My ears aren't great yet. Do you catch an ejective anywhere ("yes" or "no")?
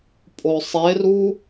yes